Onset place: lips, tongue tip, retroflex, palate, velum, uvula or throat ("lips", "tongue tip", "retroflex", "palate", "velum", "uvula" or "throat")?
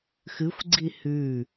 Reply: velum